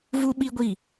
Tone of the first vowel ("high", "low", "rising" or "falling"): high